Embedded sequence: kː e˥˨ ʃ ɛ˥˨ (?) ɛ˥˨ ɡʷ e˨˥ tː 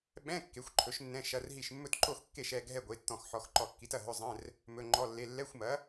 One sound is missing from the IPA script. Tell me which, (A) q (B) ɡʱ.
B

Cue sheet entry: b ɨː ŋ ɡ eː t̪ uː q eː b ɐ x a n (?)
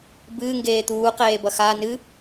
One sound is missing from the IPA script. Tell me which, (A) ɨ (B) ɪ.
A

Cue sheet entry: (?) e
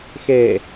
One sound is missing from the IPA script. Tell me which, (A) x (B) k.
A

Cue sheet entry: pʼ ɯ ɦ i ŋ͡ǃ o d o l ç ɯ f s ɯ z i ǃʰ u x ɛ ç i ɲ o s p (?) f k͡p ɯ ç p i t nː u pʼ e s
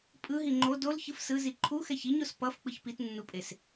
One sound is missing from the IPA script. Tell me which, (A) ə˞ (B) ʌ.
B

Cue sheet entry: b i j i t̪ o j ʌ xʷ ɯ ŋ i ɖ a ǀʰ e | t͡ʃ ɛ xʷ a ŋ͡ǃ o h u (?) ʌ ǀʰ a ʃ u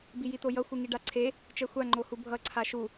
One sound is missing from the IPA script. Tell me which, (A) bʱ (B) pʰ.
A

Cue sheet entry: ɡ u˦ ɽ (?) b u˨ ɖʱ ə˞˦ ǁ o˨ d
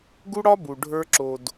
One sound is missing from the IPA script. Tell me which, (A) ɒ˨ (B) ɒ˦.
B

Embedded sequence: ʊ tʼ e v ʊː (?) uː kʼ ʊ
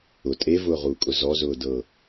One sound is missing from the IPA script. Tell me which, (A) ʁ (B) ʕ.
A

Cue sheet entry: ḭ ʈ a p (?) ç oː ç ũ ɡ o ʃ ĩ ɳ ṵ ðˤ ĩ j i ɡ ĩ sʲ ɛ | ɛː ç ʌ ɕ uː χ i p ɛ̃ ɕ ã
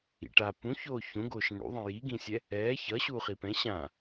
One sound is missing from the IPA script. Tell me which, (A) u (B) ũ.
B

